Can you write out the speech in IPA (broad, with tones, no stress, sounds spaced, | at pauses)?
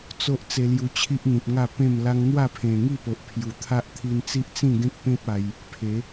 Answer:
t͡s o˦ ʔ t͡s e˧ l j u˧ t͡ɕʰ i˦ ʔ n̪ ĩ˨ p̚ ŋ a˥˧ p ẽ˥˧ m l a˦ ŋ n̪ w a˥˧ pʰ ẽ˨˩ ŋ i˥˧ p o˨ ʔ pʰ j u˨˩ t̪ʰ a˦ ʔ t̪ʰ i˧ n t͡s i˦ ʔ t͡s ĩ˥˧ ɡ ẽ˦ k̚ p ẽ˦ p̚ a˧ j | pʰ e˨˦